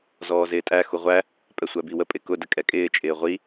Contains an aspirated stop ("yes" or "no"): no